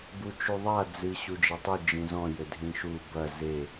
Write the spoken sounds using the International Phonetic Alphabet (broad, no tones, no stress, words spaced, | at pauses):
but͡ʃuðˤa d͡zɨ ɕud͡ʒɐtˤu d͡ʒĩzɔ̃ jɘdʱĩʃu bɐ ze